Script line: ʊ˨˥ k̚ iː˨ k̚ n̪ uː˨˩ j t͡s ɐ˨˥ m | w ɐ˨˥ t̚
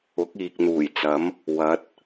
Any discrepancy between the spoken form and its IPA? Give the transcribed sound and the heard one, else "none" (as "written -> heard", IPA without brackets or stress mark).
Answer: none